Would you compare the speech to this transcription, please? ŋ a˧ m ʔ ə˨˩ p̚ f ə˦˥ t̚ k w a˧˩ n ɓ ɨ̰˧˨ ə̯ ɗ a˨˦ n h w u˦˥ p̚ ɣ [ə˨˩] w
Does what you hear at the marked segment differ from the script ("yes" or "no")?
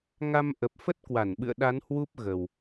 no